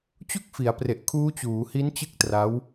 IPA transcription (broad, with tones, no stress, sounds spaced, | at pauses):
t͡ɕ u˥˩ k̚ f i˩˦ a̯ p r e˨˩ ʔ kʰ uː˦˥ t͡ɕ uː˩˦ h i˦˥ n t͡ɕ ɯ˥˩ k̚ t r a˦˥ w